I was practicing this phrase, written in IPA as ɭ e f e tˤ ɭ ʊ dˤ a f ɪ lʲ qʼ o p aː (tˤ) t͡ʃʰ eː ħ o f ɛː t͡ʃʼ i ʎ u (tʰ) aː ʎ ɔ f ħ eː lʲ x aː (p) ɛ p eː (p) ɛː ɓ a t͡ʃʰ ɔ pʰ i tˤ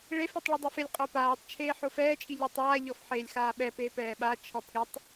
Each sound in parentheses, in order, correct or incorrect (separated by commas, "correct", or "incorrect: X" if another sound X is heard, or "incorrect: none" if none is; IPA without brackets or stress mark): correct, incorrect: tˤ, incorrect: ɓ, correct